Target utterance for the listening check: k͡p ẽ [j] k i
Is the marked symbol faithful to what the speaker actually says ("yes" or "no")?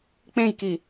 yes